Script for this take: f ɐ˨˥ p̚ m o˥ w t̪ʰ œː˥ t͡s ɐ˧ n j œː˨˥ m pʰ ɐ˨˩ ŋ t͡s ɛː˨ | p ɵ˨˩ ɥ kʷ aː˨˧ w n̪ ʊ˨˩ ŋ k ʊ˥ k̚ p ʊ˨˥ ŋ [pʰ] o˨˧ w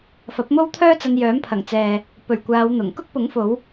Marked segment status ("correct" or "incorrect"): incorrect